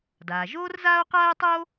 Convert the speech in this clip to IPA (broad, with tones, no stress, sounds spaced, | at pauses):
d aː˩ ʒ oː˥ r z aː˥ o̯ q aː˥ e̯ tˤ oː˥